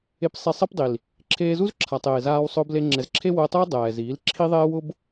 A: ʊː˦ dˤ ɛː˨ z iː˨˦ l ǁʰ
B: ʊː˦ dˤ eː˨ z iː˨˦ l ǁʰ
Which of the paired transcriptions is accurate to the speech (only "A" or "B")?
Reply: A